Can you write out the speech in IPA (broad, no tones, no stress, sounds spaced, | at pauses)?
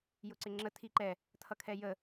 j ʊ ǀ ɪ ŋ͡ǁ ə tʰ i ǃ ɛ | tʰ ʌ kʰ ɛ j ə